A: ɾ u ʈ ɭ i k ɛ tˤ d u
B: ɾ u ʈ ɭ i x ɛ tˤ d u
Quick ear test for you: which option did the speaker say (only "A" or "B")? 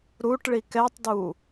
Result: A